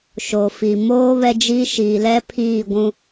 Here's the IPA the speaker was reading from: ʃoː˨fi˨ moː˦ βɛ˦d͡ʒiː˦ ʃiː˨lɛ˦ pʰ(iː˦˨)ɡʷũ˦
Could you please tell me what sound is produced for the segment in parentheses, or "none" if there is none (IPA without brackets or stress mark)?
iː˦˨